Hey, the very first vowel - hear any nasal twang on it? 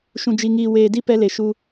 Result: yes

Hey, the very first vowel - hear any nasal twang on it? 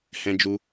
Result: yes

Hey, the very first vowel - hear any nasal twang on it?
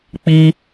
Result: no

